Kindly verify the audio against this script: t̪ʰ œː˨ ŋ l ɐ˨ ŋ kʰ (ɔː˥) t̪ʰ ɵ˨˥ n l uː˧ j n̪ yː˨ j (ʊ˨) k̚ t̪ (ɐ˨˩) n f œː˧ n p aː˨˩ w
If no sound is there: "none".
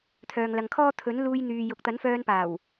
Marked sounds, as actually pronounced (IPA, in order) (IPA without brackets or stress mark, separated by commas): ɔː˥, ʊ˨, ɐ˨˥